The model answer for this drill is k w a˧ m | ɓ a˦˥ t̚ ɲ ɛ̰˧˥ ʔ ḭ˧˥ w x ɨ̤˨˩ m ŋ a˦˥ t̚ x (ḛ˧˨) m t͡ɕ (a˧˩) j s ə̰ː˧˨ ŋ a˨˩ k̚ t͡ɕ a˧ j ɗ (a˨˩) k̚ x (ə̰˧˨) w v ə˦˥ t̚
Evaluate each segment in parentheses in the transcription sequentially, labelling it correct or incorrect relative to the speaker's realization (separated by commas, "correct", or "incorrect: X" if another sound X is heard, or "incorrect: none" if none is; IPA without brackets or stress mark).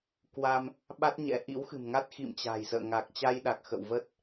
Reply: incorrect: ḭ˧˨, incorrect: a̤˨˩, correct, correct